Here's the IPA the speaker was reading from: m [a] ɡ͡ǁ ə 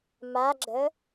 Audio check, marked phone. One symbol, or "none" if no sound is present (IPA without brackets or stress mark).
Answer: a